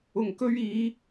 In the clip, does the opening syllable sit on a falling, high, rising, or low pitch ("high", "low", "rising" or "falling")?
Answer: low